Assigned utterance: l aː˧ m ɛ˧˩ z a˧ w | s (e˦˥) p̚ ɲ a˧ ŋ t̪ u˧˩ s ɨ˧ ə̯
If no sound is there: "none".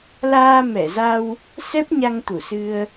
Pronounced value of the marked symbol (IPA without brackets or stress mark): ɛ˦˥